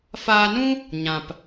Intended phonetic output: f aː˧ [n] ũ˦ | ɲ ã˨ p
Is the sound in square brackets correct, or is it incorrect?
correct